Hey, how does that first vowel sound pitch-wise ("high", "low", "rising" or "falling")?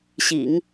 low